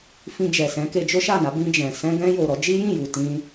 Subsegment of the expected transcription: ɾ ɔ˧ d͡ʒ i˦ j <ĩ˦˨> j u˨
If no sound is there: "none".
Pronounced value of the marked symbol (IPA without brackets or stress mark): ĩ˦˨